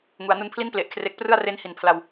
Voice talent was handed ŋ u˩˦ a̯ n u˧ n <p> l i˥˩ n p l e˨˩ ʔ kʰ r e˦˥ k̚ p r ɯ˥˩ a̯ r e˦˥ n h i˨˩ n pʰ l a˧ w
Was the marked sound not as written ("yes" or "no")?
yes